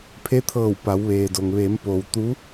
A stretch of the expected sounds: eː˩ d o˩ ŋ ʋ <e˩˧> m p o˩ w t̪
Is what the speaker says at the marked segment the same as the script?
yes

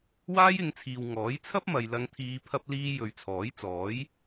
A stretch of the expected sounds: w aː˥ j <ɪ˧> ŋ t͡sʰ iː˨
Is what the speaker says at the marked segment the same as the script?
yes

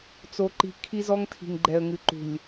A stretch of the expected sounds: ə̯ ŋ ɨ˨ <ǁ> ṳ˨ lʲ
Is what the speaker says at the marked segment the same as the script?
no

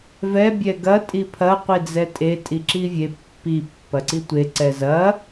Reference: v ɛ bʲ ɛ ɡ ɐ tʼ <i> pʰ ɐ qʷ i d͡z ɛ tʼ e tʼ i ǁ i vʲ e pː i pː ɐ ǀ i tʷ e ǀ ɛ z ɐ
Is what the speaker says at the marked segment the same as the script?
yes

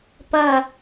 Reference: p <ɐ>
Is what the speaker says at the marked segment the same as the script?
yes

